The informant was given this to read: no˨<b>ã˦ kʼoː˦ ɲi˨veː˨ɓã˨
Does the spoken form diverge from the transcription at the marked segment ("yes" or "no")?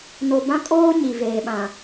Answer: no